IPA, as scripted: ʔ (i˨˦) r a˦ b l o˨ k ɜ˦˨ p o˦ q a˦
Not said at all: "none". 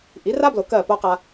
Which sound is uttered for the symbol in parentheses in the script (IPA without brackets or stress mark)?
i˨˦